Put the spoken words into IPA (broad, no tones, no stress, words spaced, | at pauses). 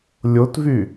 lʲotvy